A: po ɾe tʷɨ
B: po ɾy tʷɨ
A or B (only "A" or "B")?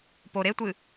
A